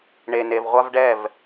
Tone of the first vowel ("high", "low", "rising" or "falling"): low